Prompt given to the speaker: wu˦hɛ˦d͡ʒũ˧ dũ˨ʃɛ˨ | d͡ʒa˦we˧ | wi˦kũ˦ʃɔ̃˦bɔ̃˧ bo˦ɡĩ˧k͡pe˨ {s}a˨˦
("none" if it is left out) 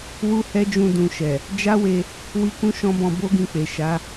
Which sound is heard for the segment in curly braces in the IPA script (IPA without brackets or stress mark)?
ʃ